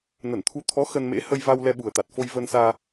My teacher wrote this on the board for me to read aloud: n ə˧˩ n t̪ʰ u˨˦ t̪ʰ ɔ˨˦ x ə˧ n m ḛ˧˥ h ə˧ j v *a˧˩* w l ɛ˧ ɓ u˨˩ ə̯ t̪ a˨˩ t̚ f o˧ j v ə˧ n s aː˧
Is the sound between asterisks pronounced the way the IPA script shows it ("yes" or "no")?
no